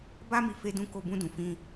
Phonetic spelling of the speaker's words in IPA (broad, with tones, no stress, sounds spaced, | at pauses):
b a˦ m i˧ f e˧ d ũ˧ k o˧ b ũ˧ d ũ˨ f ĩ˧